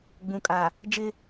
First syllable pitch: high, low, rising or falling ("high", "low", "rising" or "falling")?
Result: low